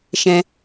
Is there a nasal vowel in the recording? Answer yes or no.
yes